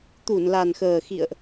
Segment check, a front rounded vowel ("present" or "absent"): absent